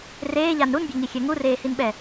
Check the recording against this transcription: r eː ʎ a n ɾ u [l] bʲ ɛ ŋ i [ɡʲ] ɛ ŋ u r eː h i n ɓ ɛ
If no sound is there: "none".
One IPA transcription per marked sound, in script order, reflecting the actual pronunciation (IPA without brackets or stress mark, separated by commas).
n, xʲ